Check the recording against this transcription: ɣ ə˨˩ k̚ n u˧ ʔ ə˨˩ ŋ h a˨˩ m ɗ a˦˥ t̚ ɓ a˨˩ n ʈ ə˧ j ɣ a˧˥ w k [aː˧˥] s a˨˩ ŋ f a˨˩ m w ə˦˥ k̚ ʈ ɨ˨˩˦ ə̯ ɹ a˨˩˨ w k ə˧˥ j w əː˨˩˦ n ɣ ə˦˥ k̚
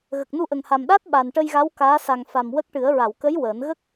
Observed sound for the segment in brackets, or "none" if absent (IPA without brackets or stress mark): aː˧˥